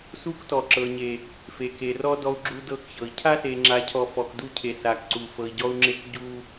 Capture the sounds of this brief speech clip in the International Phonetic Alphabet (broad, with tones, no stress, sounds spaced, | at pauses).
s u˦ k t ɔ˨ ǁ ɤ˨ ɲ e˨ | f e˨ k e˨ r ɔ˦ d ɔ˦ u̯ ɡ͡ǁ u˦ d ɤ˦ k ç ɤ˨ i̯ cʰ a˦ s e˨ ŋ͡ǁ a˨ cʰ ɔ˨ f ɔ˨ k d u˦ cʰ e˨ s a˨ k ǀ u˨ f ɤ˨ i̯ ɟ ɔ˦ u̯ ŋ͡ǁ e˦ k ɟ u˦